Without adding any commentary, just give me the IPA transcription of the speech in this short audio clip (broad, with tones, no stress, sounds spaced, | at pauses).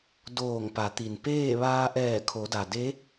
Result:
d oː˧˩ ŋ p a˩˧ t̪ i˩ n p eː˥˨ ʋ aː˧ ʔ ɛː˧˩ kʰ o˩˧ d a˩ d e˧˥